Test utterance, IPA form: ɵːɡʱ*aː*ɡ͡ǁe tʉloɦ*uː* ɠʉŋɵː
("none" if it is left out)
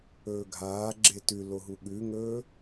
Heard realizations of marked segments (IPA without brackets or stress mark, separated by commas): aː, u